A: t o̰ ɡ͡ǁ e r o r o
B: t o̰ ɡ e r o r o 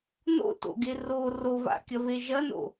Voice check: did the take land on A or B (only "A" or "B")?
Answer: B